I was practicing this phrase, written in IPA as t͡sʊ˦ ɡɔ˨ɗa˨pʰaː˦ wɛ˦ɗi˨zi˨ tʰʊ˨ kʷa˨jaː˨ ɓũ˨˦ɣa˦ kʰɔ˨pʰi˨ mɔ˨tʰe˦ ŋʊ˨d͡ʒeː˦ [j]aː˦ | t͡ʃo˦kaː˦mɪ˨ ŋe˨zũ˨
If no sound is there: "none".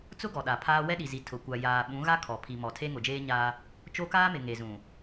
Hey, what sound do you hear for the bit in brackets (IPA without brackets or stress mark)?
ɲ